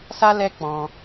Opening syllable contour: high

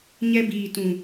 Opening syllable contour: high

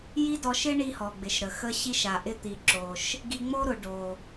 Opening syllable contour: high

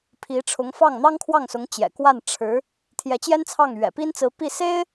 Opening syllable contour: rising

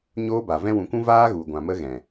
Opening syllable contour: high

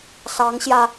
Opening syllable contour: rising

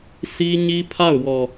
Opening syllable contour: high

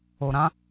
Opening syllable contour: low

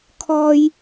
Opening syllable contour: high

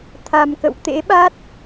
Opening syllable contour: low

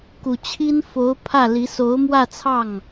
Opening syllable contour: low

